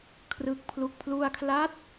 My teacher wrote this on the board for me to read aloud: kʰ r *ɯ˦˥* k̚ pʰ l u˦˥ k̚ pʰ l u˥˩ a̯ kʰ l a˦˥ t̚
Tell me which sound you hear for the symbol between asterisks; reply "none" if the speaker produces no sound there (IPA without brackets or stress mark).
ɯ˦˥